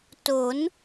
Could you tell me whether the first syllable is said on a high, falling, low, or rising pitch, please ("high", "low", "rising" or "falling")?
rising